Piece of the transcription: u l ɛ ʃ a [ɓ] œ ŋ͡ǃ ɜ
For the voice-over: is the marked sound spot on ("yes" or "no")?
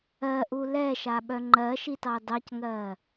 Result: yes